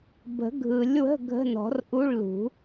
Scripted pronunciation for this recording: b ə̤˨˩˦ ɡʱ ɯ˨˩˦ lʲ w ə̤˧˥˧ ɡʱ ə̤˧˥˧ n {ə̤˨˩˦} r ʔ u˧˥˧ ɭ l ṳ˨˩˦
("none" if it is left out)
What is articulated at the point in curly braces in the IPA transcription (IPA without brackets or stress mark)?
ɔ̤˨˩˦